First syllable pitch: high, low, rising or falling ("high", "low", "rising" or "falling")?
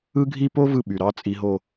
high